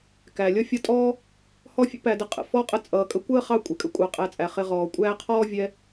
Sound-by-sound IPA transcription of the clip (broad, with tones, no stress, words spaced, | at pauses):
kæ˩lʲʌ˥ fʲʌ˦tʼɔː˥ | hɔ˦fʲə̰˥pæ˨də˨ qʼə̰˩ fɔ˥qʼə˦ t͡sʼʌː˨kʼə˥ kʷəː˥χɑ˦ kʷʼɪ˩kʼə̰˦kʷʼɑ˨ qʼæ˨t͡sʼæ˩ χɪ˨ʁɔː˩kʷʼæː˦qʰɔː˥ vʲɛ˦